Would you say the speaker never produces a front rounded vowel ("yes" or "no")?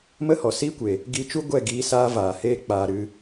yes